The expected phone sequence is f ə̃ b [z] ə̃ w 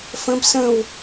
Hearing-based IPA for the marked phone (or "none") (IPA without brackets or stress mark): s